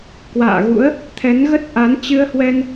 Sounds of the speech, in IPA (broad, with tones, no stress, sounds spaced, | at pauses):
k w a̰ː˧˨ ɣ ṵ˧˥ ə̯ | t̪ʰ ɛ˨˦ n ɣ ə˦˥ t̚ ʔ a˨˦ n t͡ɕ ɨ˧ ə̯ h w ɛ˧ n